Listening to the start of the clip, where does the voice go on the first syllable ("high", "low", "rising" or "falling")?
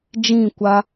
falling